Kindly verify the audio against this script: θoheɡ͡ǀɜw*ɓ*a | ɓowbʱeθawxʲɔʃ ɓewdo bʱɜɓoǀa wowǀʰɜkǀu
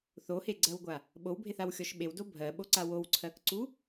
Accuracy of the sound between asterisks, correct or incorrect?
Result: incorrect